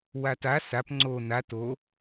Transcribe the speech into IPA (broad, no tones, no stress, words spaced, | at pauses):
wata sap ŋ͡ǀo na to